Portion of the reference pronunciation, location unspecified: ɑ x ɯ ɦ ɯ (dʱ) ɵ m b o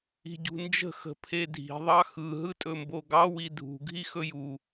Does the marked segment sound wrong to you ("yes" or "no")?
yes